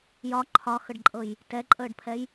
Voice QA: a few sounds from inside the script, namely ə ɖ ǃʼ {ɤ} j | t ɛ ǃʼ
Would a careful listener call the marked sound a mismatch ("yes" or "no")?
no